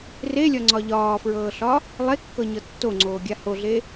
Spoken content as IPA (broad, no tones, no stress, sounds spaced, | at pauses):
r e lʲ ɒ ŋ͡ǀ ɒ ʎ ɒː f ɹ ɤː ɬ ɒ | lˠ e kː ɤ ɲ ɤ tː o ŋ͡ǀ oː ɡʲ a h o ɮ e